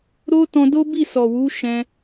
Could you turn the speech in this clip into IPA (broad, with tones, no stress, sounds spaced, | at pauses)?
ɾ o˦ t ɔ̃˧ d o˦ b i˦˨ s ɔ˨ w u˨˦ ʃ ɛ̃˧